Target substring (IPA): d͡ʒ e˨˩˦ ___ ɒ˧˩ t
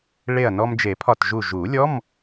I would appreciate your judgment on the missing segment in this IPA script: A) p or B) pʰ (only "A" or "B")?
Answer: B